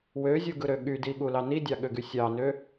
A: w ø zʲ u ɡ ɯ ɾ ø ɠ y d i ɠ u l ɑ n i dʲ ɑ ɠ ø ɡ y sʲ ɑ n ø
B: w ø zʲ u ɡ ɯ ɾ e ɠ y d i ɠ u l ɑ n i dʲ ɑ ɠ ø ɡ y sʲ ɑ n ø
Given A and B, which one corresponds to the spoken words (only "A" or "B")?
A